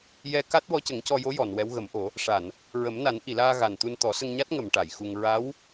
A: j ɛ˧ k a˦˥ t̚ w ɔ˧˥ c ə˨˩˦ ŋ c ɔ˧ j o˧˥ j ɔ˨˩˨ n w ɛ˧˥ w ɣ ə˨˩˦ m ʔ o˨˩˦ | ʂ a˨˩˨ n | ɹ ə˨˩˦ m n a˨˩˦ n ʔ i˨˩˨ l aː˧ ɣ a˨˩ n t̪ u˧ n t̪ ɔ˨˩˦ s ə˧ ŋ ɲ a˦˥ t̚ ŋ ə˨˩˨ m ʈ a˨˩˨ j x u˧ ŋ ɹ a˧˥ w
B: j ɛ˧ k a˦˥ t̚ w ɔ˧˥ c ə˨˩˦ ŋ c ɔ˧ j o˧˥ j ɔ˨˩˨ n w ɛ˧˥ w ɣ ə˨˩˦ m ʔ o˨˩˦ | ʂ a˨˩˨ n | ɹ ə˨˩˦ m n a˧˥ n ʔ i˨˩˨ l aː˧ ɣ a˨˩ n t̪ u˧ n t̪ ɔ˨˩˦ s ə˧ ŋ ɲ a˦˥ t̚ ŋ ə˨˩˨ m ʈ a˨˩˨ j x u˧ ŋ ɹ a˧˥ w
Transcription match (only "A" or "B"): A